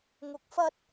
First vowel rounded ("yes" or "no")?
yes